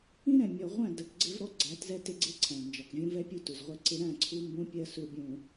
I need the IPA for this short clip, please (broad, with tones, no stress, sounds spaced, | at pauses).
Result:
ĩ˦ ɾ ɛ̃˨ mʲ ɔ˨ ʁʷ æ̃˦˨ d ə˨ k ɡ͡ǀ ɪ˦ v ɾ ɔ˦ ɡ͡ǀ æ˨˦ t z ɛ˦ t ɪ˦ ɡ͡ǀ ɪ˦ ǀʰ æ̃˨ n d͡ʒ ɒ˨ k vʲ ũ˦ v ɛ˦ pʲ u˦ t u˨ z ʁʷ ɛ˦ ǀ ɪ˦ ɾ æ̃˦˨ ǀʰ u˦ m b ũ˦ pʲ ɜ˦ s u˦ bʲ ũ˨